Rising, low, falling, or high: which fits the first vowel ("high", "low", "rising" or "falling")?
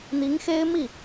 rising